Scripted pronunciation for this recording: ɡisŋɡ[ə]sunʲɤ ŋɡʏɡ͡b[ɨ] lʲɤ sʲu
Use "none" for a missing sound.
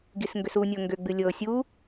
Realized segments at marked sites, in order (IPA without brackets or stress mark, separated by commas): ʏ, ɨ